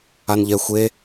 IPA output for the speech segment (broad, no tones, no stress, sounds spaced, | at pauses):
a n ʎ ɛ xʷ e